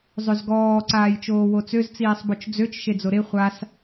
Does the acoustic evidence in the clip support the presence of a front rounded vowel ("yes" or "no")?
yes